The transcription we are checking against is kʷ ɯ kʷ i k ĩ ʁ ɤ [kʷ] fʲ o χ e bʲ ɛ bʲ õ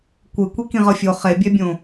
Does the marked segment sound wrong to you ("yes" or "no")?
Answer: yes